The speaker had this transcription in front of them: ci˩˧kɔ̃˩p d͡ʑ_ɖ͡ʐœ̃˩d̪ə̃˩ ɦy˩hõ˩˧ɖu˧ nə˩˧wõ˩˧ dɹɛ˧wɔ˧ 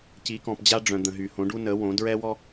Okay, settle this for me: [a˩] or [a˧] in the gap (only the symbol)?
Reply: a˧